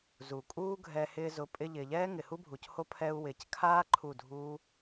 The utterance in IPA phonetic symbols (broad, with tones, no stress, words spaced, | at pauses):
zu˨kʼuː˦ɡʱɛ˧ hɪː˧zʊ˨˦ pʼɪ˧ ʎɪː˨ʎɛː˦ ŋɪ˨hu˦bʱu˨cho˦ pʰɛ˧u̯wɪː˨ckʰaː˦ ǃʰu˦˨dʱuː˦